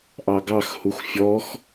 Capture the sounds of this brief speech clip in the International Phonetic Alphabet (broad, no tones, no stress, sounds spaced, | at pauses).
ʔ ɑ ɡ ɑ x h u x fʲ ɔ x